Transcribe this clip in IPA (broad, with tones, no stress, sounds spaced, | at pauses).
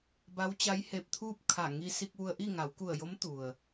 b a˧˥ w t͡ɕ a˧˥ j h e˧˩ p̚ t̪ʰ uː˥˨ p̚ kʰ a˧˩ ŋ i˧ s i˧ k̚ ʋ u˧ ə̯ ʔ i˥˨ ŋ a˩˧ w k u˧˩ ə̯ j o˧˥ m t̪ u˩ ə̯